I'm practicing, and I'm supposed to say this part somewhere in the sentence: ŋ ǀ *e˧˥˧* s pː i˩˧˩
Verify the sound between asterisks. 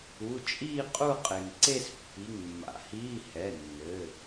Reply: incorrect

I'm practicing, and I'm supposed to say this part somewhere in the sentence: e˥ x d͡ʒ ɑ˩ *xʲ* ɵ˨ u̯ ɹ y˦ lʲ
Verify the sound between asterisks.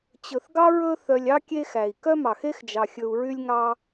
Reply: correct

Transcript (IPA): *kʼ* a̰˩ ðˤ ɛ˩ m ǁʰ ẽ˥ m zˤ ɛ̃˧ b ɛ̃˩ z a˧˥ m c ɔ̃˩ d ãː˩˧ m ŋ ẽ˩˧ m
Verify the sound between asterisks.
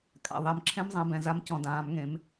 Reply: correct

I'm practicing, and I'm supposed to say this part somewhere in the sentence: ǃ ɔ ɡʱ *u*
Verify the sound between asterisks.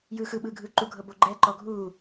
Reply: incorrect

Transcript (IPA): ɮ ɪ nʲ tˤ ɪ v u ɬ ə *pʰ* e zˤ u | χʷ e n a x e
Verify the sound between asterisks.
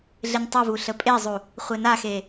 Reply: incorrect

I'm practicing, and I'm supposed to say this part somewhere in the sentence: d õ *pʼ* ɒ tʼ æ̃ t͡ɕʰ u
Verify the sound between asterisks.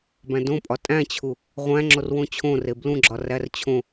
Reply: correct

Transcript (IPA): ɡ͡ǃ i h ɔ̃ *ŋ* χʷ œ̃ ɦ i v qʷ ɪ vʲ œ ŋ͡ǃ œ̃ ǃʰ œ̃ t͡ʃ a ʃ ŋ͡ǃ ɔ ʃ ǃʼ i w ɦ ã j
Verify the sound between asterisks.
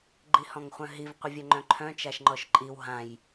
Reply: correct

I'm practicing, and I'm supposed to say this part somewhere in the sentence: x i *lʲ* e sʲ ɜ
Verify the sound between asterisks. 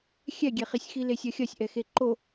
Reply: incorrect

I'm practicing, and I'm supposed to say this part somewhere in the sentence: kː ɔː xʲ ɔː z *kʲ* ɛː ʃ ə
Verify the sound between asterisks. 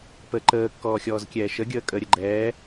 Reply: correct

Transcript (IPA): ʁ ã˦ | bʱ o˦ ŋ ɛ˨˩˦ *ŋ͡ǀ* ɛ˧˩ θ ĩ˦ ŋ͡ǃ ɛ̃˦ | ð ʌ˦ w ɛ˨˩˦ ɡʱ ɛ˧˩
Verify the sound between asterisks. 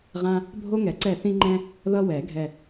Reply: incorrect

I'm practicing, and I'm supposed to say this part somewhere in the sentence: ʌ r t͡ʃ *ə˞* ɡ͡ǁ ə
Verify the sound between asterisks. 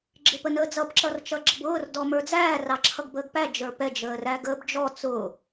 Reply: incorrect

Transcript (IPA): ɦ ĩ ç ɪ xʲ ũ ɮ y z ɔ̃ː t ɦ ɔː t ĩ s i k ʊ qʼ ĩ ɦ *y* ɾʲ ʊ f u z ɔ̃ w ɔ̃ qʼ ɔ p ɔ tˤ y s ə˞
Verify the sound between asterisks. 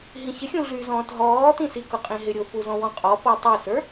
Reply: incorrect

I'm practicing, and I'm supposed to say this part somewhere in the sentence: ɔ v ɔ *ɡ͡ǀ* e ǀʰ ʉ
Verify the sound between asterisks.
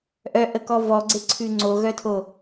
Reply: correct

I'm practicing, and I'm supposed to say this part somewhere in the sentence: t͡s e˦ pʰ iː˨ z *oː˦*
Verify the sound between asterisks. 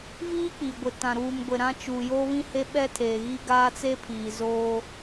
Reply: correct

